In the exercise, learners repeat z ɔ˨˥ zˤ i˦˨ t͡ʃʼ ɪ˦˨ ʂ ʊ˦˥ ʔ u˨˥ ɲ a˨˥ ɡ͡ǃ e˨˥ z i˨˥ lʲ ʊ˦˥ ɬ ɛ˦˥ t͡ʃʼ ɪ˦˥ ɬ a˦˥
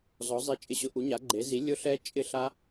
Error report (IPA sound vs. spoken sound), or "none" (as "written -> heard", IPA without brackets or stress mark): ʂ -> ɕ